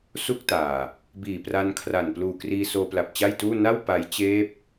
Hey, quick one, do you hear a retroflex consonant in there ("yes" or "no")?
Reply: no